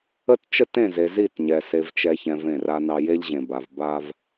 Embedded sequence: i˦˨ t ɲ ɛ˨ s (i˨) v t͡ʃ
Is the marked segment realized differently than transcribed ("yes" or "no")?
yes